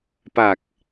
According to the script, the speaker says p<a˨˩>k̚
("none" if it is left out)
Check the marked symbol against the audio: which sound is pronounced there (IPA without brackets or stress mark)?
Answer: a˨˩